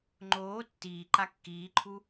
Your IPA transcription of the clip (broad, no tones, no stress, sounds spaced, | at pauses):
ŋ͡ǃ oː tː iː ǃ a kː iː ǃʰ u